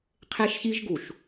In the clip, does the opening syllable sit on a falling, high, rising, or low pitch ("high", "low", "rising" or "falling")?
high